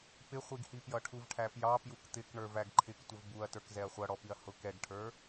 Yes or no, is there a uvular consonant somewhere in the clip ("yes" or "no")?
yes